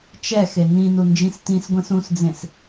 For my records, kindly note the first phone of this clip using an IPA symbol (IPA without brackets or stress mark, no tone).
t͡ʃ